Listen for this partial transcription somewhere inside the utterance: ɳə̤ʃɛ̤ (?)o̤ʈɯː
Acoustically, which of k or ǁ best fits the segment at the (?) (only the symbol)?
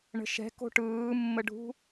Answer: k